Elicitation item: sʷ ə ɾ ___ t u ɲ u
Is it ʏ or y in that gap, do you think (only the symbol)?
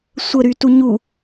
y